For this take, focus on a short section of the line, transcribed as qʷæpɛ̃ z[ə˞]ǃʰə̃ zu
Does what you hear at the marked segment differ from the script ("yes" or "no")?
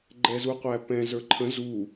no